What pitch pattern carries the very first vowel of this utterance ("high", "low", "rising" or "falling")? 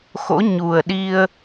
rising